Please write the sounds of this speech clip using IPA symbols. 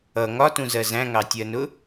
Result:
ʌ ŋ ɒ t ũ z ɜ z æ̃ ŋ ɑ tʲ ɜ n ʊ

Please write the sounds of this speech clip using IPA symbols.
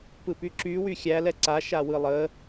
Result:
p ɯ p y ǁ y w y xʲ æ l ɛ ǀ a ʃ a w ɯ lˠ ə

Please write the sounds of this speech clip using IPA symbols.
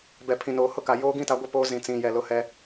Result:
b ɛ˨ pʰ ĩ˨ n oː˨ h ʊ˦ k a˨ j oː˦ ɡ ĩ˦ t a˨˦ ɡʷ ɪ˦ p oː˦ z ĩ˨ t͡s ĩ˨ j ɛ˨ l ʊ˦ h ɛ˦

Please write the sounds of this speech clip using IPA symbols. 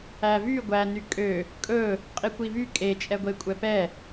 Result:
æ v y ɡʷ æ n y kʼ ø | kʼ ɵ | qʼ i kʷ i v y kʼ e t͡ʃʼ ɛ ɡʷ e kʷʼ ɛ p ɛ

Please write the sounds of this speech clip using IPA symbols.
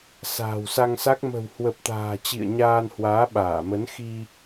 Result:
s a̤ː˨˩ w s a˧ ŋ s a˦˥ k̚ m ə̤˨˩ w h w ə˨˩ p̚ t̪ a̤ː˨˩ t͡ɕ ḭ˧˨ ə̯ ɲ aː˧ n h w aː˨˦ ɓ aː˧˩ m ə˨˦ n x i˧

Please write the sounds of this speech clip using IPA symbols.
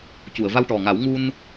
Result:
c u˨˩˨ ə̯ v a˧ w ʈ ɔ˨˩ ŋ a˨˩˦ w ŋ u˧ n

